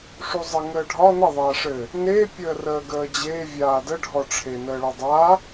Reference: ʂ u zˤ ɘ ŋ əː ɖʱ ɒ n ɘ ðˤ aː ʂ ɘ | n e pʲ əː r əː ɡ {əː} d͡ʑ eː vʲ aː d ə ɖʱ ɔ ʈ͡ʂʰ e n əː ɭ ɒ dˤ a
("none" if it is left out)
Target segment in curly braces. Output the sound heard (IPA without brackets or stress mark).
əː